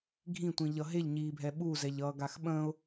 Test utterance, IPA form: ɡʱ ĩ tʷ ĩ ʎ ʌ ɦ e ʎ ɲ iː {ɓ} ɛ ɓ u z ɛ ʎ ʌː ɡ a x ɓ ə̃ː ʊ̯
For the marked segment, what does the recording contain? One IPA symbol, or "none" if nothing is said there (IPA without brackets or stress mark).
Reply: bʱ